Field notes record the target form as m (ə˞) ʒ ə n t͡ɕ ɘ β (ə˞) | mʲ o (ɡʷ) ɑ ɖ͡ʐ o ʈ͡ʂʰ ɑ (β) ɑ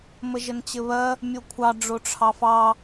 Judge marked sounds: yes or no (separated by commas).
no, no, no, no